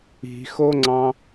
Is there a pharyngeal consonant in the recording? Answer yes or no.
no